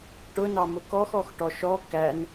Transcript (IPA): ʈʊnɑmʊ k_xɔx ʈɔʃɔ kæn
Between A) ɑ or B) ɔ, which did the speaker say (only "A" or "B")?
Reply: B